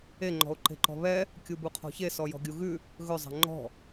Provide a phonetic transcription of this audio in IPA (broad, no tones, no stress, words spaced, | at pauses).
e ŋ͡ǃɔ̤o̯ǃe̤ǃɔ̤βɛ | kʲubuqʰɔ̤çe sɔjɔ̤ɡʲuɣʉ | ɣɵ zˤɛ̤ŋ͡ǃɔ̤